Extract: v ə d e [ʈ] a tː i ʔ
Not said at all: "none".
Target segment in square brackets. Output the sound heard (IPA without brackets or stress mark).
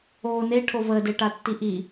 ʈ